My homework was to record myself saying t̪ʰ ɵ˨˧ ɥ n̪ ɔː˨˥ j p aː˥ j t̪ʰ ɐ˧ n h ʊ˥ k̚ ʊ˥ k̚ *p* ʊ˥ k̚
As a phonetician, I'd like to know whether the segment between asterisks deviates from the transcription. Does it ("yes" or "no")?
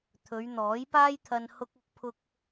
yes